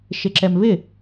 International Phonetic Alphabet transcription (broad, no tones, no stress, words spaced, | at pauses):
ʃɪǁɛmvɪ